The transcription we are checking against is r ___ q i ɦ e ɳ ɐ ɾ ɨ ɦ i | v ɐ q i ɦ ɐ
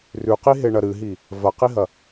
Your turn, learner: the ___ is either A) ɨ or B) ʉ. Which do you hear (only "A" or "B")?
B